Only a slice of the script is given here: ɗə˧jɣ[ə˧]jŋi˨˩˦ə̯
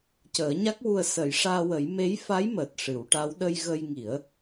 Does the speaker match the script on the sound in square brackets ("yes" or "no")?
yes